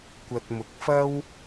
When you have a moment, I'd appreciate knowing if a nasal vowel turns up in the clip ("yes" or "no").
no